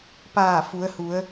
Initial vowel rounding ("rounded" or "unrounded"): unrounded